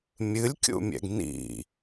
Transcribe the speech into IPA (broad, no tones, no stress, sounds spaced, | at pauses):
mʲ ɨ lʲ kʲ ṵ mʲ ɛ̰ ɡ n ḭ